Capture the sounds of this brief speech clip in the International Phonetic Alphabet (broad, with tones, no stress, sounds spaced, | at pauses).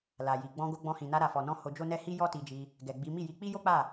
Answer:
l a˨ j i˨ ɡ͡b ɔ̃˧ ɡ o˧ ɡ͡b ɔ̃˧ h ĩ˨ n a˧ ɾ a˨ f ɔ˨ n ɔ̃˧ h o˧ d͡ʒ o˦ n ɛ˦ h i˦ j ɔ˦ t i˧ d͡ʒ i˧ | ɡ ɛ˨ ɡ͡b i˨˦ m i˦˨ j i˧ k͡p i˦ j o˦ k͡p a˦˨